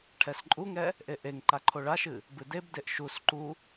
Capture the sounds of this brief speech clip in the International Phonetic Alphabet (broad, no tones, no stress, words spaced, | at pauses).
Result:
ʈʰɛsǃʼuŋɛ | ʔeʔeŋǃa ǃʰoɭaʃɨ | bɨdebdeʔ ʃus ǃu